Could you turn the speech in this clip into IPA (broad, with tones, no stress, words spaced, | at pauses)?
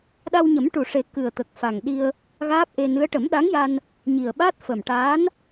ɗa˧wɲə˨˩˦mʈu˨˩ʂe˨˩˦ kɨ˨˩ə̯t̪ə˨˩k̚ fa˨˩ŋɗi˧ə̯ | ɣaː˦˥p̚ʔe˧nɨ˧˥ə̯ ʈə˨˩˦mɗa˧˥ŋja˧n | ɲi˨˩ə̯ɓa˦˥t̚ fə˨˩mʈaː˧˥n